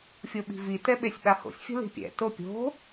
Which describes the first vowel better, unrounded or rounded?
rounded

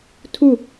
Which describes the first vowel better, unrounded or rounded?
rounded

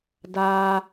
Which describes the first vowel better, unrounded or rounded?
unrounded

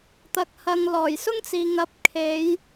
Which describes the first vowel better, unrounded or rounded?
unrounded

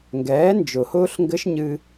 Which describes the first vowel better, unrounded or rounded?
unrounded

